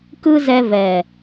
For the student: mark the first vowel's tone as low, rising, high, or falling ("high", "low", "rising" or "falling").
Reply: high